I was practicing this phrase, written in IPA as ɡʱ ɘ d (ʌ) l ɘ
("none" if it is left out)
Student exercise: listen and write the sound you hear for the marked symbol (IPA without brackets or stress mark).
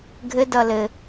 ʌ